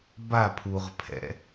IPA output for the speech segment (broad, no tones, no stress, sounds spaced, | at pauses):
b a pʰ u ʁ pʰ ɛ̰